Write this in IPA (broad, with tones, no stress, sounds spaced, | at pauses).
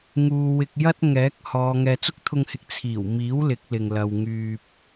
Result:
ŋ uː˨ w ɪ˧ k̚ j ɐ˥ t̚ ŋ ɛː˨˥ k̚ h ɔː˨˧ ŋ ɛː˨ t͡s ʊ˥ k̚ t̪ʰ ʊ˧ ŋ h ɪ˨˥ k̚ t͡sʰ iː˨˩ w m iː˨˥ w l ɪ˨˥ k̚ l ɪ˨ ŋ l ɐ˨ w ŋ yː˨ p̚